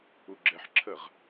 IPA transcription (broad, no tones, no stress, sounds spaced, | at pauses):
u ɡ͡ǁ ɛ ħ ǁʰ ə ʁ